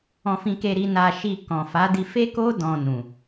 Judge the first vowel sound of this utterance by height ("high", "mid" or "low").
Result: mid